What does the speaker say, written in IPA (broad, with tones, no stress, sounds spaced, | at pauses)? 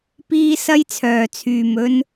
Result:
p iː˧ s ɐ˥ j t͡sʰ œː˨ t͡sʰ yː˨ m ɵ˧ n